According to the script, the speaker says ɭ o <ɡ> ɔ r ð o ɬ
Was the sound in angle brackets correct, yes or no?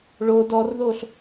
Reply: no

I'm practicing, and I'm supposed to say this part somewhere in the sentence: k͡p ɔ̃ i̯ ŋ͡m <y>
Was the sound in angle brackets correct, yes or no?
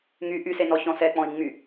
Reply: yes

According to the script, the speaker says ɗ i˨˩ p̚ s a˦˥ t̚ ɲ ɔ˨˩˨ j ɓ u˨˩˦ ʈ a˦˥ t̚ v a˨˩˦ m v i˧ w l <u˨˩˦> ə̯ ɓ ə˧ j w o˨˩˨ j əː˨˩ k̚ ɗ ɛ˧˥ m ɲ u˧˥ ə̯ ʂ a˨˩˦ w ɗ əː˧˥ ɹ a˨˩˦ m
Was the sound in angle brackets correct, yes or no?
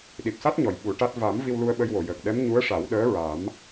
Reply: no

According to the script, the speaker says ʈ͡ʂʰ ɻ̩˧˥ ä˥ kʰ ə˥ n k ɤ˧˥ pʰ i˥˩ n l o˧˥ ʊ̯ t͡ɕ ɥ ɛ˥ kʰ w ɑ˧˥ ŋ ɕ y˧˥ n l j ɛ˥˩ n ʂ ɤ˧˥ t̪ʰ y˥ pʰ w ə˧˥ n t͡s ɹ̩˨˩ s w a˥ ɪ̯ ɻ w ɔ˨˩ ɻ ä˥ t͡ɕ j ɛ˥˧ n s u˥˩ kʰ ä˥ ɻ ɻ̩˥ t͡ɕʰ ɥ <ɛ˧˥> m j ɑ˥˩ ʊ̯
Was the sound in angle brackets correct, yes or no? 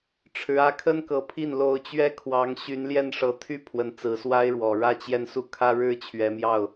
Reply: yes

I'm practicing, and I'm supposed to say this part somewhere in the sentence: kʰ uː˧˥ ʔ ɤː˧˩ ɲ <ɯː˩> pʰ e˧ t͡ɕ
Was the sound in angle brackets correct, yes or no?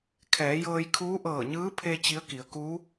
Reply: no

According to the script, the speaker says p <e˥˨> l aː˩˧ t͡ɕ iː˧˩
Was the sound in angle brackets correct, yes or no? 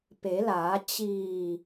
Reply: no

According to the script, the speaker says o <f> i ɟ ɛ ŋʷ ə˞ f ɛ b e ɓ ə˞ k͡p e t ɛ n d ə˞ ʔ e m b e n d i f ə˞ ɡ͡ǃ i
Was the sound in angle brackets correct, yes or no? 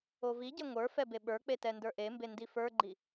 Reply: no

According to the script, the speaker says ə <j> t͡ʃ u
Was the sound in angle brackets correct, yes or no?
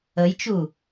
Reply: yes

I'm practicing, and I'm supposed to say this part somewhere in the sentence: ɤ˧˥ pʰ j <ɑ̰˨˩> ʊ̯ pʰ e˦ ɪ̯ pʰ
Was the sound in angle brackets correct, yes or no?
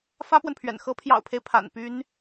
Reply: yes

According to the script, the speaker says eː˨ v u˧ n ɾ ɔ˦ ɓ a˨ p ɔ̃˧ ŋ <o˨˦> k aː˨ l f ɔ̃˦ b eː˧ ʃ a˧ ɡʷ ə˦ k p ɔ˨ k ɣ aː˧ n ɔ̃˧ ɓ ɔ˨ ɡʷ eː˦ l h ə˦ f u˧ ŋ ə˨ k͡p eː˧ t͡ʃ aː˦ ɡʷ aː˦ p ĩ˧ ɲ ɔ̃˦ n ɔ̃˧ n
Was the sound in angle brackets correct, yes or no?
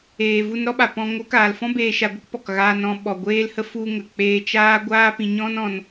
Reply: yes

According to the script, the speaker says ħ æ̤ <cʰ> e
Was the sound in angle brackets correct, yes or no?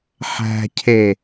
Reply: yes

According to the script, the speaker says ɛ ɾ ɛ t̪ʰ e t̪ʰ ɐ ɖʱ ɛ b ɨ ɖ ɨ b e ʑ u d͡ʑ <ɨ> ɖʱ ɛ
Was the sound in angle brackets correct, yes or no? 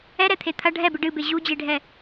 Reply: no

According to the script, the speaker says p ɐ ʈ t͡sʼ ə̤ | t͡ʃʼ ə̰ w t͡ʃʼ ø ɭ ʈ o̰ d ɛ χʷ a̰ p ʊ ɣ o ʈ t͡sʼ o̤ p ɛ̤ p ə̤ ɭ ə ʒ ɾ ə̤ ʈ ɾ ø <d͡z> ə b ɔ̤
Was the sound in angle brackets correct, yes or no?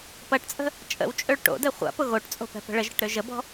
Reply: no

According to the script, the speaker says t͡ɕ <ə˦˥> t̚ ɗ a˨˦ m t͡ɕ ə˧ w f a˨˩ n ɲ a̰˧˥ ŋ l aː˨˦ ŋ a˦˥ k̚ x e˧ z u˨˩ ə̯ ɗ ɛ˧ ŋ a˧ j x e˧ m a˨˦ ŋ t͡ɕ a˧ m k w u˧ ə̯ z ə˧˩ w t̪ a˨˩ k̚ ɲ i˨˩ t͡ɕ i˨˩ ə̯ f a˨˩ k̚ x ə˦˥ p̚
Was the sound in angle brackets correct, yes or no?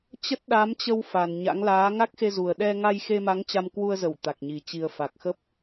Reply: yes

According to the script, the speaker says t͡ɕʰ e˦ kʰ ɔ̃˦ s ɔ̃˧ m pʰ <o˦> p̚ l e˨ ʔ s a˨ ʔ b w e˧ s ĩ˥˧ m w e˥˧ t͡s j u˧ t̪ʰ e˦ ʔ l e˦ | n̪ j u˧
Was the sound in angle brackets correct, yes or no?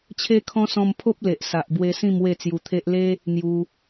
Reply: yes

